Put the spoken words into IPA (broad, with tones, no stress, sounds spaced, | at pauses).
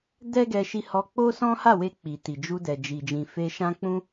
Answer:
d ɛ˦ ɡ ɛ˧ ʃ i˧ h ɔ˧ k͡p o˦ s ɔ̃˦ h a˦˨ w e˧ k͡p i˨ t i˨ d͡ʒ u˧ d ɛ˨ d͡ʒ i˨ d͡ʒ ĩ˨ f e˧ ʃ ã˦ k͡p ũ˧